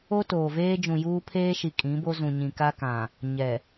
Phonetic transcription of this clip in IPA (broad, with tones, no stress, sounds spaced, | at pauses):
o˦ t oː˨ v eː˦ d͡ʒ ũ˨ j uː˦ pʰ eː˦ ʃ i˨ kʼ ĩ˨˦ b o˦ z ũ˨ ɲ ĩ˨ k a˦ k ã˨ | ɲ ɛ˨